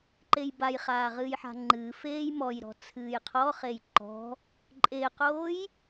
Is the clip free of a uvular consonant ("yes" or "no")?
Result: no